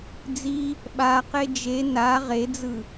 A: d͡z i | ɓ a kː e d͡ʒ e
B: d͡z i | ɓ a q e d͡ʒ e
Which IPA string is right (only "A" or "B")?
B